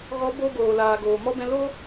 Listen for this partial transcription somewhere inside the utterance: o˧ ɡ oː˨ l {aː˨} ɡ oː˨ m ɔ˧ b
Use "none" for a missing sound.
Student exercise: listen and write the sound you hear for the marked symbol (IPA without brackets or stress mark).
aː˨